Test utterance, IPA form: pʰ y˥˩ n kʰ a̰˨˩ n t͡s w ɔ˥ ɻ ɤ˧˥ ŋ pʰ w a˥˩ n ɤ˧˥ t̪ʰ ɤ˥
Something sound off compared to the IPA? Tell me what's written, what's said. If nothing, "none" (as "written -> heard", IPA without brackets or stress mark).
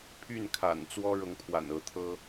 a˥˩ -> a̰˨˩